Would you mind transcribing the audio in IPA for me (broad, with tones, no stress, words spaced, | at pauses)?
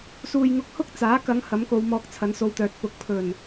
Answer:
suː˨jŋʊ˧k̚hʊ˥k̚ t͡saː˨˥kɐ˨˧ŋ hɐ˨˥mko˨˧w mɔː˧k̚t͡sʰɐ˨˥nso˧wt̪œː˨t̚ pʊ˨k̚ pʰɵ˨˩n